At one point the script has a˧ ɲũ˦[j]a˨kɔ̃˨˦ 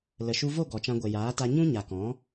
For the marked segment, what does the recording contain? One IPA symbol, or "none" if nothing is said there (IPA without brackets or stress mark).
ɲ